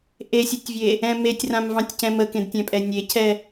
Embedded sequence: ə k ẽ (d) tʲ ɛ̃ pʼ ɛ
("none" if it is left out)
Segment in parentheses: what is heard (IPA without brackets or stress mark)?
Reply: d